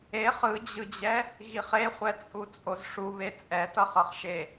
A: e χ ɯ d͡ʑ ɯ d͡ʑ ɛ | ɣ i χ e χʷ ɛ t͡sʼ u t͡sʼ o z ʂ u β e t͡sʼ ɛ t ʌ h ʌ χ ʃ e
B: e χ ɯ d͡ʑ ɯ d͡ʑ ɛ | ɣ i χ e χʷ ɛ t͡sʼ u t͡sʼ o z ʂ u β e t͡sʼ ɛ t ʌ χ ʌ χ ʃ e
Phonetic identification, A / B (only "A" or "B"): B